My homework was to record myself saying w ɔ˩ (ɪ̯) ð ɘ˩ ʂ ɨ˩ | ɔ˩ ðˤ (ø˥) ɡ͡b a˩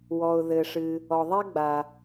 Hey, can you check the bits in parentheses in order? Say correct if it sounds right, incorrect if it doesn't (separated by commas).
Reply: incorrect, incorrect